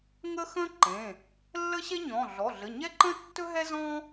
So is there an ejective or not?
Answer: no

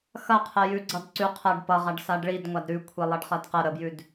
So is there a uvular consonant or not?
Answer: yes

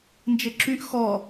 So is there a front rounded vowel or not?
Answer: yes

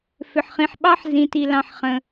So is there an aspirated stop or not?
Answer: no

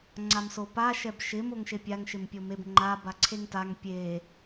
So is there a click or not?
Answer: yes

